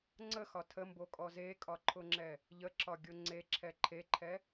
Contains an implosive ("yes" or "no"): no